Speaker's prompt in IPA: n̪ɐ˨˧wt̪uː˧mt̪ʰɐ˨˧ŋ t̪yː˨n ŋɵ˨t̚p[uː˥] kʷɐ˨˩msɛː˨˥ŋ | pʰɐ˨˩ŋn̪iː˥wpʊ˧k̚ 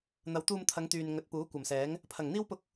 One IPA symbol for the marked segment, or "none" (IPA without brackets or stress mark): uː˨˥